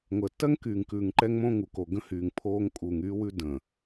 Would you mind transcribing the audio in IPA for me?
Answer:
ŋʷ əː˨ tː ɜ˦ ŋ k yː˨ ŋ k ʉː˨ ŋ ǃ ɛ˦ ŋ m õ˦ ŋ u˨ k o˨ ɡ ə̃˦ h yː˨ ŋ pʰ oː˦ ŋ kʼ uː˨ ŋ yː˦ w ʉ˦ d ə̃ː˨

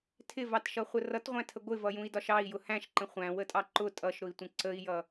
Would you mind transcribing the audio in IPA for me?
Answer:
tʰ ɪ v ɑ t ʃ ʌ χʷ ə r ʌ t ʁʷ æ̃ tʰ ə ɡʷ ɪ v ʌ j ũ i̯ d ɒ ʃ ɑ i̯ j ʊ h æ̃ ʃ ǃ ə̃ χʷ æ̃ w ə tʼ ɑ ǃ ʊ tʼ ʌ ʃ ɾ ʊ i̯ tʷ ə̃ ǀ ə i̯ j ʌ

